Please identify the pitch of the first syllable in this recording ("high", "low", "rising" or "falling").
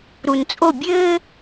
low